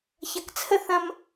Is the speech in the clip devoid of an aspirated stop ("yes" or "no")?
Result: no